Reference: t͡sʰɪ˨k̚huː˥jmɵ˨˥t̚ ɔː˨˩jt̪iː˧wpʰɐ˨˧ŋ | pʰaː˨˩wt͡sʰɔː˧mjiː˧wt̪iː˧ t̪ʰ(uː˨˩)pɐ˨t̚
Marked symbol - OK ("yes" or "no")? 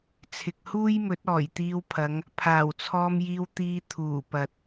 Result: yes